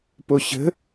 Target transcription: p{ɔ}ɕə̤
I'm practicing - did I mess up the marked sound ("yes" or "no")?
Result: yes